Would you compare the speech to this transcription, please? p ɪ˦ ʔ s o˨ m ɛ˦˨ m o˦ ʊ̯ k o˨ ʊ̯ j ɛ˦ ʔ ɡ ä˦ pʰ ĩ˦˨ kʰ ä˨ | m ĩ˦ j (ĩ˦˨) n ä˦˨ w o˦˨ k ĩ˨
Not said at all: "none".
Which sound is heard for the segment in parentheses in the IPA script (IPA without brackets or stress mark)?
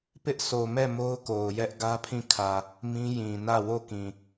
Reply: ĩ˨